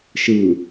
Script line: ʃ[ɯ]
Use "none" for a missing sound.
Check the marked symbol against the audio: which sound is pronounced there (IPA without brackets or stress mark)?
ɯ